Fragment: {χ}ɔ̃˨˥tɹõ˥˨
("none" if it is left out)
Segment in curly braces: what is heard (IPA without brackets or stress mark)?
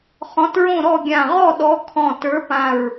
χ